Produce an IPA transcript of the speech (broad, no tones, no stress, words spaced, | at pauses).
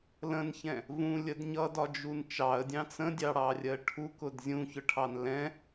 lə̃nçɛ̃ | vũlʲəd ɲʌdɒd͡ʒun t͡ʃɑə̯dʲɑ̃ t͡sə̃dʲɑɽɑrʲɜ ʈʰukʊd zʲũçʊʈʰɑn lɛ̃